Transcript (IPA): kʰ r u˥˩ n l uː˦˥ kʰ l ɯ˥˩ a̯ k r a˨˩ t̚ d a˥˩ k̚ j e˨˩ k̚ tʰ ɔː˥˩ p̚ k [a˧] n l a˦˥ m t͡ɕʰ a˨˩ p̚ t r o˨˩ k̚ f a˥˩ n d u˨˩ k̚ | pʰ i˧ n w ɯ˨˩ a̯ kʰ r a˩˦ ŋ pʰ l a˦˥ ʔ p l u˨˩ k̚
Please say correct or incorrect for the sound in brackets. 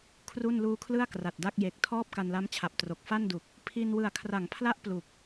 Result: correct